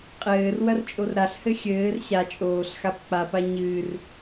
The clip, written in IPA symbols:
qʼɘːr wɐrt͡ʃʼorɾaɬhɘ xʲɘːr ɕa t͡ʃʼoːɬxap k͡papa ɲɨːr

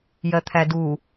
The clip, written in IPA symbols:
jɜt̪ʰædu

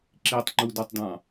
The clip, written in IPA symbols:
ǁitˤŋ͡ǃudɔtˤdɑ̃

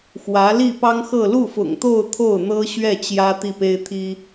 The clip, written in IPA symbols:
xwä˧˥ li˥˩pɑ˥ŋxɤ˥˧ lu˥˩fʊ̰˨˩ŋt̪o˥˧ʊ̯ t̪ʰo˥˩ʊ̯n̪ɤ˥ɕɥɛ˥˩ t͡ɕjä˥t̪i˥˩pe˥ɪ̯ t̪ʰi˥

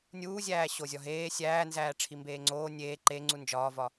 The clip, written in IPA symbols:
nʲuːzʲæː ɕozʲɒɦeː sʲæːnzæː ʈ͡ʂʰimbeːŋ͡ǀoː nʲeː ǃeŋ͡ǀu nd͡ʒɒːvɒ

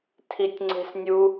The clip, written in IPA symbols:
tʰitʲŋ͡ǀe̤snʲu

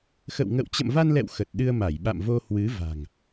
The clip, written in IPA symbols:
xə̰˧˨wŋə̰˧˨w t͡ɕə̰˧˨mva˧nlɛ̰˧˨w xə˨˩t̚ɗɨ˧ə̯ ma˧˩jɓa̰˧˨mvo˧ hwɨ˨˦ va̤˨˩ŋ

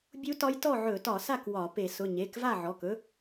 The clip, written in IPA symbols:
bʲu˦˥tɒ˦˥j tɔ˥˨ʕɵ˧˩˧tɒ˧˩˧sa˥˨k wɒ˧˩˧pe˧˩˧ sʊ˩˧˩ɲe˩˧˩k va˥˨ʕɔ˩˧˩kɵ˦˥

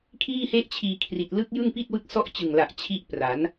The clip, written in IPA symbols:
kʰiː˥˩he˥˩ʔt͡ɕʰiː˧kʰri˨˩t̚ lɯ˦˥k̚jɯ˥˩ŋpi˥˩t̚ wɯ˦˥k̚sɔ˦˥ʔt͡ɕɯ˨˩ŋla˨˩ʔ t͡ɕʰi˦˥ʔpra˩˦n

